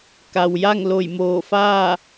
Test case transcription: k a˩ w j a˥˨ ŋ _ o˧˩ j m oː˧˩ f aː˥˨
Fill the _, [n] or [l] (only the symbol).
l